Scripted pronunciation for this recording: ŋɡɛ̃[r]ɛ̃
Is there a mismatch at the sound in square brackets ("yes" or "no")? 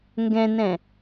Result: yes